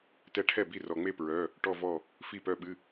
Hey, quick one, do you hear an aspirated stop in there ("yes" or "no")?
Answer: yes